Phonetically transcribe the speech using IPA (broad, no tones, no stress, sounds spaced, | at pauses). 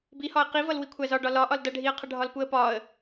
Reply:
b i h ɒ ə̯ q i v ʌ l w i kʷʰ æ z ɒ ɖ ɒ l ɒ ʔ ɒ l d ʌ ɖʱ i ə̯ qʰ ʌ ɖʱ ɒ l p u ə̯ p ɒ ə̯